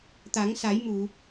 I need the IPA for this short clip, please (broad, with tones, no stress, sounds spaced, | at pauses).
t̪ a˨˩˦ ŋ s a˨˩˦ j m u˨˩˨